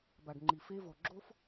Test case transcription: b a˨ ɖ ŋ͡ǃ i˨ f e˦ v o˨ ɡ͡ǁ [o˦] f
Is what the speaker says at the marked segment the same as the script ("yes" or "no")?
yes